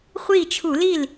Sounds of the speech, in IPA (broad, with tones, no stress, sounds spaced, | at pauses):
χʷ i˥˩ t͡ʃʰ u˧˩˧ l i˥˩ l